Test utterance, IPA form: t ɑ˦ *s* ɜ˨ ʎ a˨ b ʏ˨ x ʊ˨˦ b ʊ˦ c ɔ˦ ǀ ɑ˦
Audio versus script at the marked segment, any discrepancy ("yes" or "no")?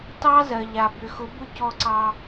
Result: yes